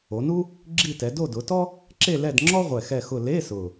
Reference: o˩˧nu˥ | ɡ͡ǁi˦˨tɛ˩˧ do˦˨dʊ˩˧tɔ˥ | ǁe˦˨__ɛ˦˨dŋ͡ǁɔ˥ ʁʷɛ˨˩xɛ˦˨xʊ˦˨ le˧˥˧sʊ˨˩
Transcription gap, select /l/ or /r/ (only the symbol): l